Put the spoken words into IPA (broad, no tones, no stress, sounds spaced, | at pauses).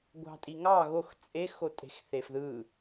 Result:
ɡʷ ɑ̤ tʼ i ŋ ɑ ɣ o x t͡sʼ e x o tʼ e̤ x θ e f ð ɯ